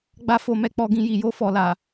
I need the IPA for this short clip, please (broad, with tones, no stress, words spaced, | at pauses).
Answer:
ɡ͡ba˧fo˨mɛ˧k͡pɔ˨ ɡĩ˧ji˨ jo˧fɔ˨la˨